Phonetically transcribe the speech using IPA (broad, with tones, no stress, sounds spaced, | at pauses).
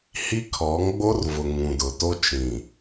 h i˦ kʰ ɔ˨˦ ŋ ɡ͡b o˦ r v ʊ˨ ŋ ũ˨ d ʊ˨ t o˦ t͡ʃ ĩ˨